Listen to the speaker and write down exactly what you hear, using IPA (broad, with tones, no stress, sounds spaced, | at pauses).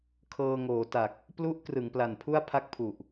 kʰ ɤː˧ ŋ oː˩˦ t a˨˩ k̚ | p l u˦˥ ʔ k r ɯ˩˦ ŋ p l a˨˩ n pʰ u˥˩ a̯ pʰ a˥˩ k̚ pʰ u˨˩ ʔ